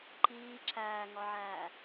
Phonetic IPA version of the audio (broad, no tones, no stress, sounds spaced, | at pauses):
ǃ iː ǁ æː ŋ ɒ ʕ æː